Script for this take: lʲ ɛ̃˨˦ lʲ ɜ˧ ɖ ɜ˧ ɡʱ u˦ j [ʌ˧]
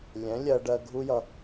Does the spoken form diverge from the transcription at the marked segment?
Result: no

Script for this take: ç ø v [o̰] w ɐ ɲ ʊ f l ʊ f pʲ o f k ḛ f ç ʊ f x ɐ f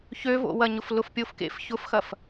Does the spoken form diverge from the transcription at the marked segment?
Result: no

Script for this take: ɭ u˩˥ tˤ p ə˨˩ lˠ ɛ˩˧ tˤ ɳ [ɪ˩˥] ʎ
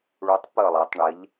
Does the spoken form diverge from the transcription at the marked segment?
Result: yes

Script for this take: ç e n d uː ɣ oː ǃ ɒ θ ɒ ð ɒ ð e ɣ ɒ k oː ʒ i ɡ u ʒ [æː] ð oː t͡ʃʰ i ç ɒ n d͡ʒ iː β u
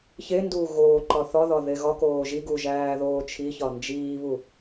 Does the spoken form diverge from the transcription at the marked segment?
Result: no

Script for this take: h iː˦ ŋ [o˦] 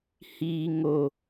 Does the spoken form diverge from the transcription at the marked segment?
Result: no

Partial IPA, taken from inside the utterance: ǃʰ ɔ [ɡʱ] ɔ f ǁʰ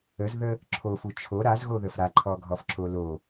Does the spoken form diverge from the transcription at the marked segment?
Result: no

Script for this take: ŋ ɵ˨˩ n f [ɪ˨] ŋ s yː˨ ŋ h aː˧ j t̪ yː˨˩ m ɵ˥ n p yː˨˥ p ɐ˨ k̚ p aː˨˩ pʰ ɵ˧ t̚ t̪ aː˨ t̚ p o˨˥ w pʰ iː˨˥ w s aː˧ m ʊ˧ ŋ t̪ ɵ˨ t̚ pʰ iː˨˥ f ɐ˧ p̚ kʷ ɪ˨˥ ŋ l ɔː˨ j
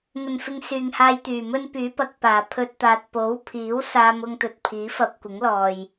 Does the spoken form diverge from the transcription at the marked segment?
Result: no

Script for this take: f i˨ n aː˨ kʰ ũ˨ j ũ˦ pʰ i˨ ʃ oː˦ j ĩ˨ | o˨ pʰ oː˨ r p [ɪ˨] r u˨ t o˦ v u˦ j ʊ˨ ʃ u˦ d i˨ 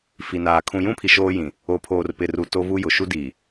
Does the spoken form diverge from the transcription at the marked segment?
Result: no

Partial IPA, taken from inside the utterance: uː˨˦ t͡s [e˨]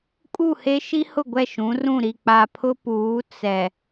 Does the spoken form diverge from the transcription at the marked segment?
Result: yes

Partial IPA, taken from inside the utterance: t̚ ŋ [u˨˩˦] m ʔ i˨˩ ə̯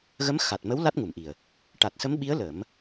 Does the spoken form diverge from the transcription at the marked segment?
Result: yes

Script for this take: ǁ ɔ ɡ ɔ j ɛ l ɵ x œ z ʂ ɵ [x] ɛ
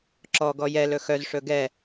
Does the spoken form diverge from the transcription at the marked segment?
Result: yes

